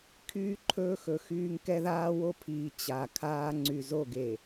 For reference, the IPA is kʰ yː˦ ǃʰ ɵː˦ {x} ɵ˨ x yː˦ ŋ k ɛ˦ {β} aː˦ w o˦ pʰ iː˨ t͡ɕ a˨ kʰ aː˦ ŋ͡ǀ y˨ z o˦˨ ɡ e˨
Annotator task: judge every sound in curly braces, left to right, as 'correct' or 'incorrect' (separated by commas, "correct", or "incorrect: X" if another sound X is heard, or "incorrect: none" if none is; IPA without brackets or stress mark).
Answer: correct, incorrect: ð